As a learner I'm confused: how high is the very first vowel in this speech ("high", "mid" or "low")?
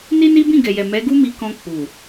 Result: high